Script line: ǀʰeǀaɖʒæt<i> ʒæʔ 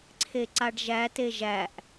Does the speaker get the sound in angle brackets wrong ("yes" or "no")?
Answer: yes